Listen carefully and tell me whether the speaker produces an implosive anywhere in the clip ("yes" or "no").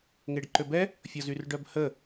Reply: no